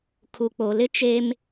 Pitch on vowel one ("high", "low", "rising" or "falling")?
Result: low